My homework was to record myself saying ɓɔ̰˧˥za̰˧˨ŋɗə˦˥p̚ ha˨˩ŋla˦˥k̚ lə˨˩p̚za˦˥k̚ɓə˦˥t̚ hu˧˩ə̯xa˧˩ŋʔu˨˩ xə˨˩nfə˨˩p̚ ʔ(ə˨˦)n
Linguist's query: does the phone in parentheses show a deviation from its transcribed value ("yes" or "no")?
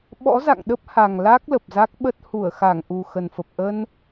yes